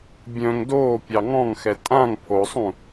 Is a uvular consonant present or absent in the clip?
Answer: absent